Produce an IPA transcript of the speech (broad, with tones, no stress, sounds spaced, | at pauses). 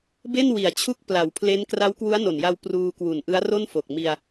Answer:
b e˥˩ n w i˩˦ a̯ t͡ɕʰ u˦˥ k̚ p l a˩˦ w pʰ l e˦˥ n k r a˦˥ w k w u˦˥ a̯ n o˨˩ n j a˧ w p r uː˧ k w u˨˩ n ʔ ɯ˦˥ a̯ r o˥˩ n f o˨˩ k̚ m i˧ a̯